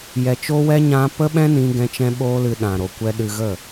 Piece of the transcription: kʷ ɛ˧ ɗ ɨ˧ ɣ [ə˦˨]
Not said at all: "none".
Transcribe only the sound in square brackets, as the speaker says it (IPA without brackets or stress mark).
ə˦˨